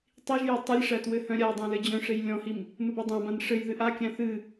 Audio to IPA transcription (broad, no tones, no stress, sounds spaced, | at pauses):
tˤ i ʒ j ɘ tˤ i lʲ ʂ æ t w ɘ h œ̃ ɾʲ a dˤ ã l ɘ d͡ʑ œ̃ ʂ e j lʲ ɔ̃ h i m | m ɘ b œ dˤ ã b ã n ʂ ɘ j ð ɨ ʔ a kʲ æ̃ θ ɨ